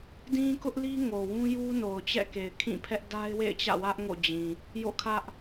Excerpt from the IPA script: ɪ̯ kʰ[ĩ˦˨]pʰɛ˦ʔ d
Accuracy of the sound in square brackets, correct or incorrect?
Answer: correct